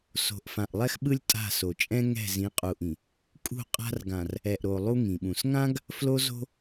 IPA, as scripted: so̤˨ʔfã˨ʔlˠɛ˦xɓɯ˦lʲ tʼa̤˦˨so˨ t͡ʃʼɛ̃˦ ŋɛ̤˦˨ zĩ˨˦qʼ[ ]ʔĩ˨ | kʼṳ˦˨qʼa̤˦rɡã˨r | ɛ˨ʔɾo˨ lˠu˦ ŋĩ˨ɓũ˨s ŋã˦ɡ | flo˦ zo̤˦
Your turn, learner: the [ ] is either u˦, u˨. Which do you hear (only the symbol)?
u˨